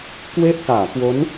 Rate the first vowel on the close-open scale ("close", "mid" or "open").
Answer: mid